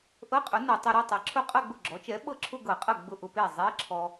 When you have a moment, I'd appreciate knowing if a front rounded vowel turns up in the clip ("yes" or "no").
no